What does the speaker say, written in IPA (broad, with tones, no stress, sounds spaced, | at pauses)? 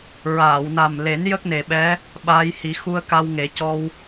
ɹ aː˨˩˨ w n a˨˩ m l e˨˩˦ n j ə˦˥ k̚ n e˨˩ ɓ ɛ˧˥ | ɓ aː˧ j h i˨˩˦ x u˧ ə̯ k a˧ w ŋ e˨˩˦ c ɔ˧ w